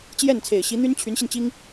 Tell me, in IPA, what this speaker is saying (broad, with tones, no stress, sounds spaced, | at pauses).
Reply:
t͡ɕ j ɛ˥˩ n t͡sʰ e˨˩ ɪ̯ ɕ i˧˥ n̪ y˥ n t͡ɕʰ y˧˥ n ɕ i˧ n t͡ɕ i˥ ŋ